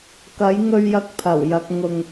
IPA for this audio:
k ɐ˨˥ j ŋ ɵ˧ ɥ j ɐ˧ k̚ pʰ ɐ˨˩ w j ɐ˧ k̚ ŋ ʊ˨ ŋ

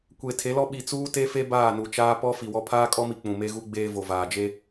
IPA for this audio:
kʷ e˨ tʰ e˨˦ l ɔ˦ ɓ i˨ t͡s uː˦ t e˦ f e˦ b aː˦˨ n u˨ t͡ʃ aː˦ p ɔ˦ f i˨ w ɔ˦ pʰ aː˦ kʼ ɔ˦ m i˨ k͡p ũ˨ m e˦ ɣ u˦ ɡ͡b eː˦ v o˨ v aː˨ d͡ʒ e˦

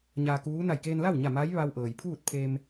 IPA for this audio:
ɲ a˧ k uː˧˥ n a˧˩ j k eː˧ n l a˥˨ w ɲ a˧˩ m a˧˥ j ʋ a˧ w ʔ ɤː˩ j pʰ uː˥˨ t̚ pʰ e˧ m

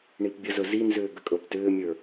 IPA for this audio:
ɳ i p bʲ ə z ɵ z i n z ʏː ɡ ə kʼ ɤ p t ʏː mʲ ə˞

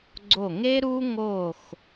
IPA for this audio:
ɡ͡ǀ o˧˩ ŋ e˥ ɾ u˥ ŋ o˧˩ x

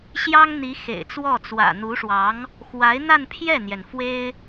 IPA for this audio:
ɕ j ɑ˥ ŋ n̪ i˧˥ x ḛ˨˩ ɪ̯ t͡s w ɔ˥˩ t͡s w ä̰˨˩ n̪ u˧˥ ʂ w ɑ˧˥ ŋ | x w a˧˥ ɪ̯ n̪ a˥˧ n pʰ j ɛ˥˩ n̪ j ɛ˩ n f w e˥ ɪ̯

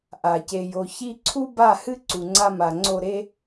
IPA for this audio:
ʔ a˨ c e˨ j o˨ ç i˦ ǀʰ u˦ b a˦˨ h ɨ˦ ǀ u˨ ŋ͡ǀ a˦ m a˨ ŋ͡ǀ o˦˨ ɾ e˦

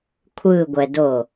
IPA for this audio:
kʷʰ ɯ ɡʷ ɛ d o

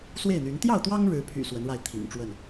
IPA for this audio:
s w e˥˨ ɪ̯ n̪ y˨˦ n t̪ j ɑ˥˨ ʊ̯ t̪ w ɑ˦ ŋ ɻ ɻ̩˨˦ pʰ y̰˨˩ s w ə˨˦ n ɻ a˧ ɪ̯ t̪ʰ ḭ˨˩ ŋ ʈ͡ʂ w ə˥˨ n

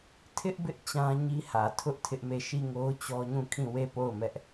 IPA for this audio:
tʰ ɪ˦ ʔ b ɪ˦ ʔ t͡ɕ ã˦ ɲ i˦ h ä˨ tʰ ʊ˦ ʔ tʰ ɪ˦ ʔ m e˦˨ ʃ i˦˨ ŋ o˦ ʊ̯ t͡ɕ ɔ˦ ɲ ũ˦˨ kʰ ĩ˦˨ w e˦˨ p o˦˨ ʊ̯ m ɛ˦ ʔ

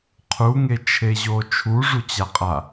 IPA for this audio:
qʰ u ŋ e t͡ʃʰ e ʑ o t͡ʃʰ u ʐ u t͡ɕ a qʼ a

